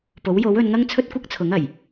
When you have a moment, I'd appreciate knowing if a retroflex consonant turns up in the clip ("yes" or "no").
no